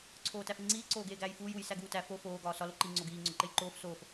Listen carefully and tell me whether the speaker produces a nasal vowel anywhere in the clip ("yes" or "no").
no